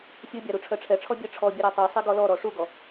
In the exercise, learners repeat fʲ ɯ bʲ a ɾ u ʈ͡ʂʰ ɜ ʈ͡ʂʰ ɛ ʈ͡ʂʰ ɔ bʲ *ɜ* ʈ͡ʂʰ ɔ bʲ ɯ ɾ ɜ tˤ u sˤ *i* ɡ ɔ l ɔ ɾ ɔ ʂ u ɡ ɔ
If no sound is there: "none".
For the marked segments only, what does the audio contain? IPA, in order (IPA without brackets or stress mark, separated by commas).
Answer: ɜ, i